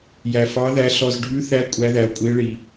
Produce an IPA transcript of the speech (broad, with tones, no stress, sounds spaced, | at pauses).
j æ˨ f ɑ˧˥ ð æ˧˥ ɬ ɔ˨ z ɖʱ ʉ˧˥ θ æ˧˥ kʷʼ æ˧˥ ð æ˨ o̯ kʷʼ i˧˥ e̯ ɭ i˨